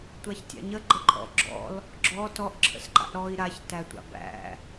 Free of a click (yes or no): no